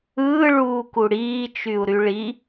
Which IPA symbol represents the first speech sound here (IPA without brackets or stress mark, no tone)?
ɯː